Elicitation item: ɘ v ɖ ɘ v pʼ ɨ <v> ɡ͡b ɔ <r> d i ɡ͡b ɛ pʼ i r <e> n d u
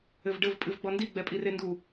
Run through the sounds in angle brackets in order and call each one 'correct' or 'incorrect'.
correct, incorrect, correct

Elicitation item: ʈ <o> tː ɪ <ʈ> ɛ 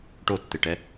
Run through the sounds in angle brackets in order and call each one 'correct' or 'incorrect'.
correct, correct

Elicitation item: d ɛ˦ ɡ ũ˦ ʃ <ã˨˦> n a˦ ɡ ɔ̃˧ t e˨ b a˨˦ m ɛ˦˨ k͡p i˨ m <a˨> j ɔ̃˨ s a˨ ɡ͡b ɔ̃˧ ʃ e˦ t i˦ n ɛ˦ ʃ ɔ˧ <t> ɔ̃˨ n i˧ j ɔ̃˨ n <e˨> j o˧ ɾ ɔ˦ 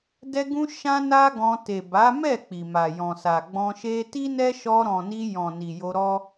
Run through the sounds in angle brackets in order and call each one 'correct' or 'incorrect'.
incorrect, correct, incorrect, incorrect

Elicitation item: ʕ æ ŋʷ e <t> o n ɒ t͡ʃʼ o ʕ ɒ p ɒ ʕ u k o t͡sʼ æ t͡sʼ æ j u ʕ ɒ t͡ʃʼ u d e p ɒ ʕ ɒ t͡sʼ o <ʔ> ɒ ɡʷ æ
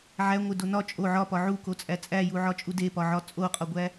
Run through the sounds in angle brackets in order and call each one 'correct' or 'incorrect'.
incorrect, incorrect

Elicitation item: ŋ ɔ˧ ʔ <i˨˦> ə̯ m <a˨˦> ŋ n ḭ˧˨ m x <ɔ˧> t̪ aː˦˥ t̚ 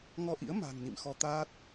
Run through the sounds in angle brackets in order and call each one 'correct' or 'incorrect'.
incorrect, incorrect, correct

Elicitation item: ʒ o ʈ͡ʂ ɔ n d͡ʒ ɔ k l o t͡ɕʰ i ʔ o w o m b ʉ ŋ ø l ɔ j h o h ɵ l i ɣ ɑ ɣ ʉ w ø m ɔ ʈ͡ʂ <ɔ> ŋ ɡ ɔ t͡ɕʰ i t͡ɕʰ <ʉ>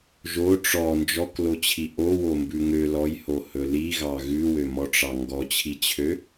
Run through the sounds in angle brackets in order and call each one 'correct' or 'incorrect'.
incorrect, incorrect

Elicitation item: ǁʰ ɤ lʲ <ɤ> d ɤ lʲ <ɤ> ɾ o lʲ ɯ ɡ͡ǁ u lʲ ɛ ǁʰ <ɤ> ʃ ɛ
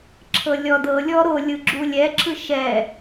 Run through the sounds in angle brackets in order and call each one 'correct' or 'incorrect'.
incorrect, incorrect, incorrect

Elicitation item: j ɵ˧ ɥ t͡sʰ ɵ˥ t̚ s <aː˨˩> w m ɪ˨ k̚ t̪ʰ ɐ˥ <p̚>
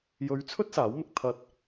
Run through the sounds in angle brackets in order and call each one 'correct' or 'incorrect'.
incorrect, incorrect

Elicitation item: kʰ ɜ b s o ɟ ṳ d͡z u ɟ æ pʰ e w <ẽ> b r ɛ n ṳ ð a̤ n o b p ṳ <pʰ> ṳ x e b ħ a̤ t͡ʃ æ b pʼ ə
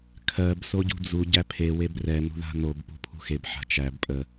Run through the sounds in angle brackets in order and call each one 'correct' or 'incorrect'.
incorrect, correct

